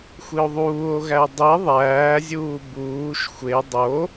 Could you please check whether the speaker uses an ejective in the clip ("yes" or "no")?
no